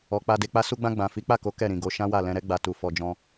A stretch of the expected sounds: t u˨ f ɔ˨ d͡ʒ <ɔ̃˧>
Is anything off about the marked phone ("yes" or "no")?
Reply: no